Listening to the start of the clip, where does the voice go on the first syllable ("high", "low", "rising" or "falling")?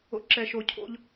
rising